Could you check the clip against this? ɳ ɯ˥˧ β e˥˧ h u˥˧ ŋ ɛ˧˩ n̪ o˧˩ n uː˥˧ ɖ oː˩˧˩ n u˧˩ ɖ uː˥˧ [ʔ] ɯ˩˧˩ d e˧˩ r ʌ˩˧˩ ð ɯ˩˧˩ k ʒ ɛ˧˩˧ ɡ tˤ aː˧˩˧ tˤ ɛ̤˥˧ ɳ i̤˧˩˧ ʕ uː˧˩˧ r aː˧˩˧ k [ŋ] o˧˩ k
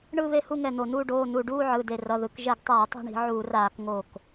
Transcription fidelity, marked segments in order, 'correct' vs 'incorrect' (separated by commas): incorrect, correct